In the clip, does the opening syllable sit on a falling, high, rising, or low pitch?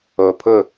low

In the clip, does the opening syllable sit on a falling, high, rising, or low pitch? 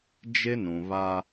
high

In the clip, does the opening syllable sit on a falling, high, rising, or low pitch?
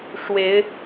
rising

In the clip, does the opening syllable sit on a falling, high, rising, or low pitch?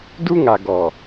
high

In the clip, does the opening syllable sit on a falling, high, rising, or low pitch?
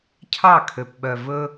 falling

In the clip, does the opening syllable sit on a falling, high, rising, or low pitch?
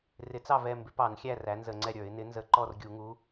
rising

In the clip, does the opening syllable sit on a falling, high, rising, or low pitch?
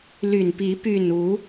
low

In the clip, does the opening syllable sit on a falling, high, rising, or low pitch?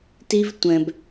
high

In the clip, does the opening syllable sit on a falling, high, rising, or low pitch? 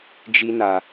high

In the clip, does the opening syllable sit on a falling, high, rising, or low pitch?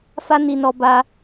high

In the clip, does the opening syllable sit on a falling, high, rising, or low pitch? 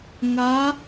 rising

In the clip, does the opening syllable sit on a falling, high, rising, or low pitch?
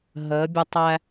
rising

